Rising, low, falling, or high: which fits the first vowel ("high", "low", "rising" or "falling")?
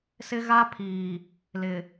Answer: high